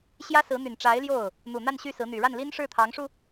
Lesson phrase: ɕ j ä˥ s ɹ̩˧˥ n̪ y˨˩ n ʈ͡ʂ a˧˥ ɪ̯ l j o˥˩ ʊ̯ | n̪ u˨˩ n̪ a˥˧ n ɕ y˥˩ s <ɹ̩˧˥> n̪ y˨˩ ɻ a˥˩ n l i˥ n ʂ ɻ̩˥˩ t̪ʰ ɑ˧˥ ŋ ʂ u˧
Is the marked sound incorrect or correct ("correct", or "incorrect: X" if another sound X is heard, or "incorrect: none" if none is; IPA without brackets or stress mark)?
correct